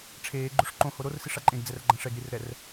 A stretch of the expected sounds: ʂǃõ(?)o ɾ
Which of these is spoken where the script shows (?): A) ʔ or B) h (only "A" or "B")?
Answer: B